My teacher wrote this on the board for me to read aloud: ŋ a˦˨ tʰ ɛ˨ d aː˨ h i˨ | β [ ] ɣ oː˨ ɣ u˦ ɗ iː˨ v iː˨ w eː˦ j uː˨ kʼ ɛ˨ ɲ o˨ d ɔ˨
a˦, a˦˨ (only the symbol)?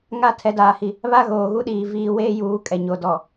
a˦